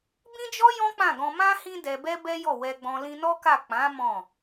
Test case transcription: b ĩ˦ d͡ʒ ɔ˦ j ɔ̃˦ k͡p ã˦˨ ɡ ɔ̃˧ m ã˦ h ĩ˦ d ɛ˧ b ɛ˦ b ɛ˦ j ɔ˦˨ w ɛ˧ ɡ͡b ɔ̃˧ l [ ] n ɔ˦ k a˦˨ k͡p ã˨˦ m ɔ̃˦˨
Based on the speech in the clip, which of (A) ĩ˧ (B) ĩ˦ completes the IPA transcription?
A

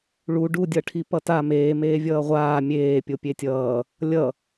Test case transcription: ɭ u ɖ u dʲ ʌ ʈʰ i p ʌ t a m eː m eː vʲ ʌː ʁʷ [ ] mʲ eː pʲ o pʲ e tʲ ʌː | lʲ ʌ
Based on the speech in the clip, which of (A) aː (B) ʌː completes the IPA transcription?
A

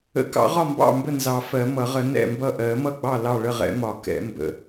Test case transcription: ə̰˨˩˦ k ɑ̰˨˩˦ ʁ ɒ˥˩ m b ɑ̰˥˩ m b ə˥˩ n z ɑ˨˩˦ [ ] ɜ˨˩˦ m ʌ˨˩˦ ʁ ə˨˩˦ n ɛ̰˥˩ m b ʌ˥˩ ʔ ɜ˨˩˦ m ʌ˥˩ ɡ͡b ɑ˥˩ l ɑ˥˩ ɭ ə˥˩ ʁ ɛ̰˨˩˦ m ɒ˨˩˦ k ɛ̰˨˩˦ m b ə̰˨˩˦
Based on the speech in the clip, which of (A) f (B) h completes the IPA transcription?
A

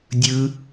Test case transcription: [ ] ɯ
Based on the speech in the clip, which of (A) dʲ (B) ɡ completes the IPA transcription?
A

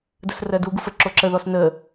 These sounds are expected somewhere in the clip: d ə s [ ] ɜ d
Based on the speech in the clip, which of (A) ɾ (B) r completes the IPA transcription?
B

